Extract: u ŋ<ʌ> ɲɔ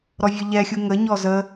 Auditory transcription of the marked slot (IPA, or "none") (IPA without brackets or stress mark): ə